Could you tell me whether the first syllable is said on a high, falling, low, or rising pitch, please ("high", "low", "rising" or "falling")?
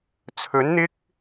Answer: rising